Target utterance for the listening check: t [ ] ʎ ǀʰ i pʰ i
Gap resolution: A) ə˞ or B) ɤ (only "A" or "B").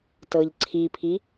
B